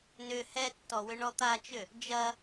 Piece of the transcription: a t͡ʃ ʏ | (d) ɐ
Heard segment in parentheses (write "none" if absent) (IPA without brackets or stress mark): d͡ʒ